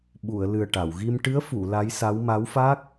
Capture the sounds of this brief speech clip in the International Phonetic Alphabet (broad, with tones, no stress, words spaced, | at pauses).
ɓu˨˩˨ə̯ lɨ˨˩ə̯ʈa˨˩˨wɣi˧m ʈɨ˧˥ə̯fu˨˩˨ la˧˥jsa˧˥w ma˧˥wfa˦˥k̚